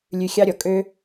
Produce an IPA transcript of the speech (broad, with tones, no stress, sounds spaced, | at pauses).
lʲ ʉ˧ xʲ ɑ˦ ɾʲ ɔ˨ kʼ ø˦